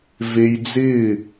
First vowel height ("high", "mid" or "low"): mid